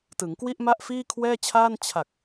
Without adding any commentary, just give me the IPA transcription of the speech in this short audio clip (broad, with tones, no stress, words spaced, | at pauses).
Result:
tɯ˩˦ŋkwi˥˩ʔma˥˩ʔ fiː˥˩kʰwɛː˥˩t͡ɕʰaː˥˩n t͡ɕʰa˨˩k̚